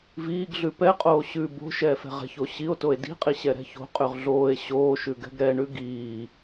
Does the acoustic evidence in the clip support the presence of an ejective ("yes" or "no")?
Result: yes